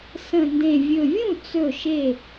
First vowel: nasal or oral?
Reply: nasal